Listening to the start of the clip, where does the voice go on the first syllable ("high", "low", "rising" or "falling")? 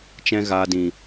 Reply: high